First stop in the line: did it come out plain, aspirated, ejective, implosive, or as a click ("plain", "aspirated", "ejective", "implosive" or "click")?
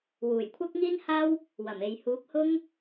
aspirated